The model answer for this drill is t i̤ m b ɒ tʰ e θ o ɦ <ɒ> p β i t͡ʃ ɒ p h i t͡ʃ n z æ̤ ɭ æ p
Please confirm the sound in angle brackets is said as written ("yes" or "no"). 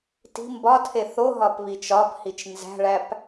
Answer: yes